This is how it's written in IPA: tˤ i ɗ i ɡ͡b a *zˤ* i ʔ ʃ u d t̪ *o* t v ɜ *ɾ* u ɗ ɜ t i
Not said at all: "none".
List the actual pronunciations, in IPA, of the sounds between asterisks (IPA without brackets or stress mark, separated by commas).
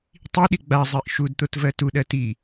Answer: zˤ, o, t